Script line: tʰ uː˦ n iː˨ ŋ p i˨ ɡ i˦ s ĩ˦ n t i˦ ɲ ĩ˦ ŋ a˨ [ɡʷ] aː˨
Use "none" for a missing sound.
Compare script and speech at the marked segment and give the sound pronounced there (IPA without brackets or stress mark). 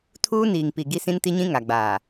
ɡ͡b